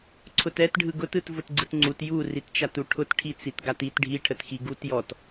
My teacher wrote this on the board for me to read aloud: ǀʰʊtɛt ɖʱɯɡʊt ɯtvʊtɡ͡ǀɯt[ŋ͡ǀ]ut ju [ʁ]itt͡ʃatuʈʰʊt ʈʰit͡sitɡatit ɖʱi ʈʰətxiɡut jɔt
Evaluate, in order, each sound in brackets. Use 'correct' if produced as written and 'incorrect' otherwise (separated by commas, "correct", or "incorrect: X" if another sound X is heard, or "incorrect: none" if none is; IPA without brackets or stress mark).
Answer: correct, incorrect: r